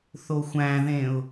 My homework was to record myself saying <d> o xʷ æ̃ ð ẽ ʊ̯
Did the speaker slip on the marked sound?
yes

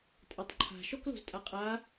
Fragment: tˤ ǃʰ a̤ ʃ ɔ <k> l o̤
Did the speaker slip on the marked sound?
no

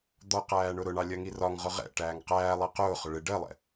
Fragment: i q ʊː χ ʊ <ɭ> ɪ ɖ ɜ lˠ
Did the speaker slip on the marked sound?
no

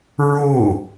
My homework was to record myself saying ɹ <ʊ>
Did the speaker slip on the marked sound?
no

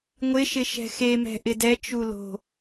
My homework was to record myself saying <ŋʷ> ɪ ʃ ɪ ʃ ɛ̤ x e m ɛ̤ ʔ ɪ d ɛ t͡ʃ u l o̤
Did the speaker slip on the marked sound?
no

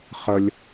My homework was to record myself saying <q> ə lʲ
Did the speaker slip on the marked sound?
yes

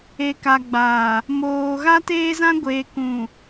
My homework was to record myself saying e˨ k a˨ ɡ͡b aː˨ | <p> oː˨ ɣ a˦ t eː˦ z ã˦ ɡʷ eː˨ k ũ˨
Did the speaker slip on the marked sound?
yes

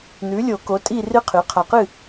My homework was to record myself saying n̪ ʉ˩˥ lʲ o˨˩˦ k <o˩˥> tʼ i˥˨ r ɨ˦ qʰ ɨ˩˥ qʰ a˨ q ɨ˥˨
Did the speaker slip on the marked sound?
no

